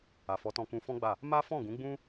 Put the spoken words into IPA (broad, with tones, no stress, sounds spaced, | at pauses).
a˨ f ɔ˨˦ t ɔ̃˧ k ũ˧ f ɔ̃˦ ɡ͡b a˦˨ | m a˦ f ɔ̃˦˨ ɡ ũ˨˦ ɡ͡b ũ˦